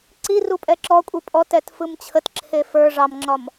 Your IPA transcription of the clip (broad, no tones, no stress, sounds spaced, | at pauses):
ǀ i r u pʼ ɛ ǁ ɔ kʷʼ i pʼ ɔ t ɛ t f ɯ m t͡ɕʰ ə t ǁʰ e f ə˞ ʐ ɑ m ŋ͡ǁ ɒ m